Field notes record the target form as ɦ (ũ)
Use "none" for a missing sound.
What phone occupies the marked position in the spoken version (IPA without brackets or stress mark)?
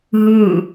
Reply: u